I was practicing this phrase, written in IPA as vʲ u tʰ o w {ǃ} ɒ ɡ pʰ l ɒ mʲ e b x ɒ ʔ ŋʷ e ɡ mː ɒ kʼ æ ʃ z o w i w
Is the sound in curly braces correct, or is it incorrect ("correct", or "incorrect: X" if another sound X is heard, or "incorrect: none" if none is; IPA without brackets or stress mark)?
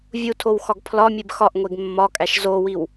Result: incorrect: x